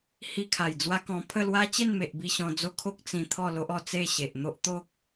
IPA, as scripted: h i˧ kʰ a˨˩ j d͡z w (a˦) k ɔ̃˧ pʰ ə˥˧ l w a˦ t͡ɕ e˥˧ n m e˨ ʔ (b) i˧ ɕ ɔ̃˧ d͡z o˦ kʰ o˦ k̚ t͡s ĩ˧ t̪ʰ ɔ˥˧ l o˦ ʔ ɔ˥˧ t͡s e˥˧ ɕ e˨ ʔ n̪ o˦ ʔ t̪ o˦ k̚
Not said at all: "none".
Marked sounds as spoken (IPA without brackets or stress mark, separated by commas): a˦, b